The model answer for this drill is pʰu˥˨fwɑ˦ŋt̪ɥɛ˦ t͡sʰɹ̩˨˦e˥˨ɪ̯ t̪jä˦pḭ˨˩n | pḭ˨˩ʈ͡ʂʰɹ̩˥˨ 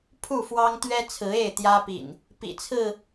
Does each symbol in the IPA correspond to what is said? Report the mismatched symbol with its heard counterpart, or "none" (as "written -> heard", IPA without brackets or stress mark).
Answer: ʈ͡ʂʰ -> t͡sʰ